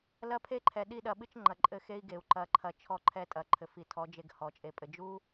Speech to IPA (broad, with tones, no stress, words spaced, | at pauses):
lɐ˦pʰe˦ǃʰɛ˨ ɗi˦˨ɗɐ˧ɓɨ˦t͡ʃ ŋ͡ǃɐ˨ǃʼɘ˧xe˦i̯ɡe˨u̯ ǃɐ˨ǃʰɐ˨ t͡ʃʰɔ˧ǃʰɛ˧tʼɐ˨ ǃʰɘ˨fi˨tʰɔ˨˦d͡ʒe˧ɡ hɔ˨t͡ʃʼe˧pʼɘ˧ d͡ʒu˦